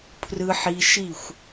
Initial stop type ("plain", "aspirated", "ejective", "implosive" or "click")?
aspirated